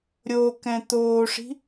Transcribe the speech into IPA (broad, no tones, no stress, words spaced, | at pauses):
ɾʲo kɛ̃t̪oːʂi̤